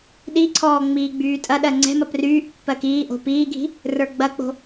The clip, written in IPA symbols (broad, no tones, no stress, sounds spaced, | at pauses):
ɗ i ǀʰ ɔː ŋ͡m iː ɡ͡b yː tʼ ɐ ɗ ɜ ŋ͡ǀ ɛ̤ m ɐ p r yː ʔ pː ɜ k iː ʔ o̤ p iː ɡʱ i̤ | r ə˞ ɡ͡b ɐ k͡p o̤